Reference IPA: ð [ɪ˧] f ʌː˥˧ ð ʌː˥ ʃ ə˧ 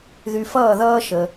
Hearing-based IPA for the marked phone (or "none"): y˧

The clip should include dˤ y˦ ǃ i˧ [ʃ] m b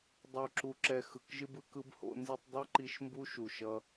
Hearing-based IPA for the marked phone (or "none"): ʃ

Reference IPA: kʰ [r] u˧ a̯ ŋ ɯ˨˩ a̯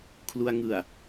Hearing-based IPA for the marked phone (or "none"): l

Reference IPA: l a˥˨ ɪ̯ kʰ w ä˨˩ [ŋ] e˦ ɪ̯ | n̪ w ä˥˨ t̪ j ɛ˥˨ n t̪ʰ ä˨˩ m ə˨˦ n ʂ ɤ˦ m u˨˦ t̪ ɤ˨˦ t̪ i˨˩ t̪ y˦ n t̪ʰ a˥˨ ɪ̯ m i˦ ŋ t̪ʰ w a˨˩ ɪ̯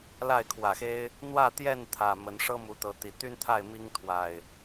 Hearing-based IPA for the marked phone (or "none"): x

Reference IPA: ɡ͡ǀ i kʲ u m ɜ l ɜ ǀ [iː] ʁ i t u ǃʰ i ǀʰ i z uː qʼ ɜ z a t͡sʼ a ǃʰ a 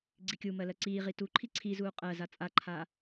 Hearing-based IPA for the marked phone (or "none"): iː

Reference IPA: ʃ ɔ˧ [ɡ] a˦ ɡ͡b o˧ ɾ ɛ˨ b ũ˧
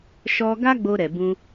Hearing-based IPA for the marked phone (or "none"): ɡ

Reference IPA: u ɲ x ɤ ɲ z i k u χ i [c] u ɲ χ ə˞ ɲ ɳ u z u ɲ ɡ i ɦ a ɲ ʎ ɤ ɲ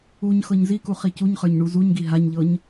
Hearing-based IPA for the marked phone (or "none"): c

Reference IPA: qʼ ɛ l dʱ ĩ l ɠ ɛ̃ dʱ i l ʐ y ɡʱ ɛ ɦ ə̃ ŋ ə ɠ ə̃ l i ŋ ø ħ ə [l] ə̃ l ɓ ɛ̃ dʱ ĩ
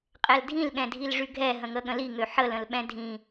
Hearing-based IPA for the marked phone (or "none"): l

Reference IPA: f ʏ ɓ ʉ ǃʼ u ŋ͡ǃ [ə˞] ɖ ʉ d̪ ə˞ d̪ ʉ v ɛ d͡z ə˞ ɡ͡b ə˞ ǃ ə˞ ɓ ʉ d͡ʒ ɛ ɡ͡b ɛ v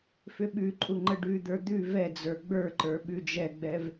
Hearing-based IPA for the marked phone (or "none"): ə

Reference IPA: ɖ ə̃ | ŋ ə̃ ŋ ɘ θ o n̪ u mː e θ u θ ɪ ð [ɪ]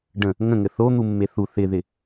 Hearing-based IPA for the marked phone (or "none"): ɪ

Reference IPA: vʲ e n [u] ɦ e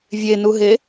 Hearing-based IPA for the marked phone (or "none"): u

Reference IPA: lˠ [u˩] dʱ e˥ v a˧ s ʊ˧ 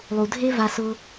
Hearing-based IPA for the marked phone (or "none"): u˩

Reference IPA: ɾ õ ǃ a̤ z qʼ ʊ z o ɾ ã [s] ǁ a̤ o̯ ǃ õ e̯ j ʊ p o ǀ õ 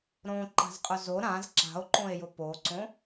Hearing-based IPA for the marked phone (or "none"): z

